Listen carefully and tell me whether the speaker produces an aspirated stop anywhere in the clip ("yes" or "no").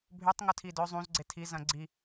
yes